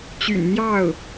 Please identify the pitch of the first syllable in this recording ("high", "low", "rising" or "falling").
low